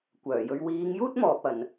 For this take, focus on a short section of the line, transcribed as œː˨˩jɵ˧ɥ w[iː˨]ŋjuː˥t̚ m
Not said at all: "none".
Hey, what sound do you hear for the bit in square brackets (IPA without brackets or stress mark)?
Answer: iː˨˧